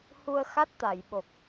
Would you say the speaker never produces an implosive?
no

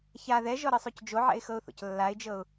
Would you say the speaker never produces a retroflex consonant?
yes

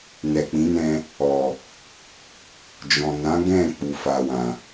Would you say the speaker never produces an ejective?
yes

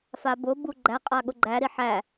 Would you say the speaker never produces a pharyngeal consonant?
no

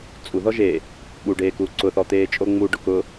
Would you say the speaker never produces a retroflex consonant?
no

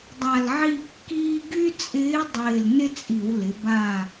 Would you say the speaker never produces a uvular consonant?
yes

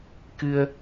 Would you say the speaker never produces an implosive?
yes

